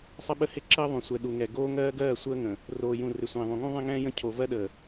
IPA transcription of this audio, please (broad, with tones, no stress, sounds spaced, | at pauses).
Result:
sˤ ə˦ ɓ ə˦ h ɪ˦ ǁ əː˦ ðˤ ũ˨ sʷ ɛ˨ ɗ u˨ ŋ ɛ˨ ɡ oː˦ ŋ ɜː˦ ɡ ɜː˦˨ sʷ əː˦ ŋ ə̃˨ | r oː˨ j ũ˨ r ɪ˨ sʷ ẽː˨ ðˤ ũ˨ ŋ ũ˦ ðˤ ẽ˦ ŋ ɛ̃ː˦ j ə̃˦˨ cʰ o˨ v ɜ˦ ɗ əː˨